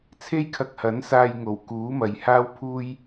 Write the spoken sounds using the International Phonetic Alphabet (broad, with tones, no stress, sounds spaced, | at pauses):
t͡sʰ e˥ j kʰ ɐ˧ k̚ h ɐ˨˥ n s aː˧ j ŋ o˨˩ w k uː˨˥ m ɐ˨ j h aː˥ w pʰ uː˥ j